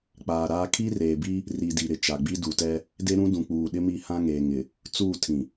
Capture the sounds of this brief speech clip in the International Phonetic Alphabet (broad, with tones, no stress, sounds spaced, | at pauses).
k͡p aː˨ ɾ aː˦ kʰ i˦ r eː˨ b i˦ | r i˨ d i˨ ɾ ɪ˨ t͡ʃ a˨ ɡ͡b i˦ d u˨ t ɛ˦ | d e˦ ɾ ũ˦ d ũ˨ k͡p uː˨ ɗ ɪ˦ m i˦˨ h ã˦ ŋ eː˨ ŋ ɪ˨ | t͡s uː˦˨ tʰ ĩ˨